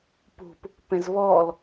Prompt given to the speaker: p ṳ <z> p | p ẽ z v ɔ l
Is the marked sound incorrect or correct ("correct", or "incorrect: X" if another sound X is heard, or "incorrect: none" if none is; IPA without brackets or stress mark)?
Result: incorrect: none